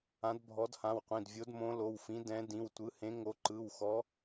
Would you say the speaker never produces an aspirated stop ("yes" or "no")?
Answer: yes